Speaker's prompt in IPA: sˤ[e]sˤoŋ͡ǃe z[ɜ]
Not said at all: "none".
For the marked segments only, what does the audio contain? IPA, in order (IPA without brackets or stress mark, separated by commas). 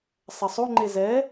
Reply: ɛ, ɛ